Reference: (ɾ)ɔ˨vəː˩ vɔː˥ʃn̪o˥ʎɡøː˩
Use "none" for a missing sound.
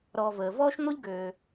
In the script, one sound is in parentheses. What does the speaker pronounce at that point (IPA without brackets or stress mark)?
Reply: ɾ